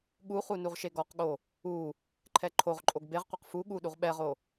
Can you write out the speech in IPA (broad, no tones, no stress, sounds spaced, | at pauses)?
ɠ u χ u n u ʁ ʃ e ɡ ɔ q ɠ o | u | ǃʰ ɛ ǃʰ o ʁ ǃʼ o ɡ b e ʁ qʷ e q f u ɠ u ɗ u ʁ ɓ ɛ ʁ o